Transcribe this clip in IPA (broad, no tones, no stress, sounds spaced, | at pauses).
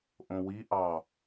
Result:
ʔ õ w i ʔ ɑ